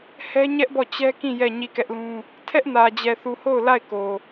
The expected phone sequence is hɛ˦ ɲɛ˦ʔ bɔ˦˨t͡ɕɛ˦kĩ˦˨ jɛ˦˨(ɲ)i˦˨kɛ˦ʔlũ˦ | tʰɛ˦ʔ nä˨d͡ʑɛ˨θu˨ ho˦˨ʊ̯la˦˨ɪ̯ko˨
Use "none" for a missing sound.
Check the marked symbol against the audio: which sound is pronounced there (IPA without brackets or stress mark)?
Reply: ɲ